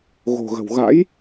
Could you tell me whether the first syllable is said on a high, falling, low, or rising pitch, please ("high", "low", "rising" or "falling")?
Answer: low